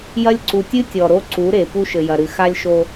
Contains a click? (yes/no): yes